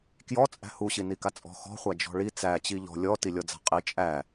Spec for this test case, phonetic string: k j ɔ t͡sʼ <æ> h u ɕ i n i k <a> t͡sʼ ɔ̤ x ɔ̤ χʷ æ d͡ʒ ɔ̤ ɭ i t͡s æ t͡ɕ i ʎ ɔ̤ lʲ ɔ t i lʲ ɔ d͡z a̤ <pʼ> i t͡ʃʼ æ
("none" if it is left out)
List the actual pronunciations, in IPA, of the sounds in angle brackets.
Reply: æ̤, a, qʼ

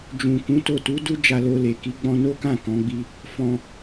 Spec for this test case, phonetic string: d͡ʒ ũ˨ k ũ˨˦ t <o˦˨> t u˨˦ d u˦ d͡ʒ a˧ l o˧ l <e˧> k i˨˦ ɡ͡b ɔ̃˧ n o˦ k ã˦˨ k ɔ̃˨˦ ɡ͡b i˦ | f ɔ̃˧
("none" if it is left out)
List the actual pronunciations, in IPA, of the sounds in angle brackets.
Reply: o˦˨, e˨

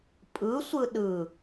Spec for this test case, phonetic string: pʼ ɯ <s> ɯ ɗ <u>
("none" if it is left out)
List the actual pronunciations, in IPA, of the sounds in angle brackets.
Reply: sʷ, ɯ

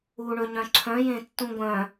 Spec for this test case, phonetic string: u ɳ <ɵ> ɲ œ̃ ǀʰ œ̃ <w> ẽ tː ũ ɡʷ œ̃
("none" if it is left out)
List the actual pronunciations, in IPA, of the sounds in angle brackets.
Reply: ɵ, j

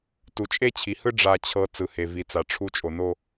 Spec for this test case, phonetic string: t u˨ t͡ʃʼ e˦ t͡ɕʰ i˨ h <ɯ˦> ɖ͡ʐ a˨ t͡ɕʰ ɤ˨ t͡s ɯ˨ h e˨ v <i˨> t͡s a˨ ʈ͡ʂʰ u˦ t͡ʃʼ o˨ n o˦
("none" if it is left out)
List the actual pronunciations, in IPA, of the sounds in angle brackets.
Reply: ɯ˦, i˨

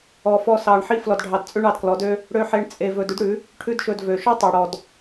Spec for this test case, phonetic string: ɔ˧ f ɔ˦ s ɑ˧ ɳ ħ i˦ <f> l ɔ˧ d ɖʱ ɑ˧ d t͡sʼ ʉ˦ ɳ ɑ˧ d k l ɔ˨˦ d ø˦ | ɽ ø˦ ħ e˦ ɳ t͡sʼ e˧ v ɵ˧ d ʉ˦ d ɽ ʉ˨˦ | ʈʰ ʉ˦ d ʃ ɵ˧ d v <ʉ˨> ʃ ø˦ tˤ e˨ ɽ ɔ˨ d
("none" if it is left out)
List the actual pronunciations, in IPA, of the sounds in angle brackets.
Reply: f, ø˨

